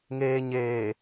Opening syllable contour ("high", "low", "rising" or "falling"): low